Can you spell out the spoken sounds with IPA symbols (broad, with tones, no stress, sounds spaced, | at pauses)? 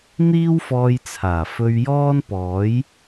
n̪ iː˥ w f ɔː˧ j t͡sʰ aː˨˩ f ɵ˧ ɥ j ɔː˥ n p ɔː˨˥ j